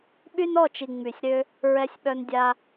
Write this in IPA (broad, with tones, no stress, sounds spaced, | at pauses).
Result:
ɓ y˦ n ɔ˦˨ t͡ʃ i˨ ŋ͡m y˨ sʲ ɾ ø˦ | ɹ ɛ˦ sʲ ɓ œ˦ n dʲ a˧